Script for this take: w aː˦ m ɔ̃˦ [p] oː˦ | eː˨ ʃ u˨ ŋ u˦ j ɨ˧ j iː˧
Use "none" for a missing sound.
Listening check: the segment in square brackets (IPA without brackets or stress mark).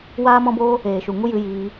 b